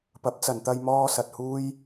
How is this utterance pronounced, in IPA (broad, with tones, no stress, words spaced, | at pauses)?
pɐ˨˥p̚t͡sɐ˨nt̪ɐ˧j mɔː˥sɐ˧t̚ huː˥j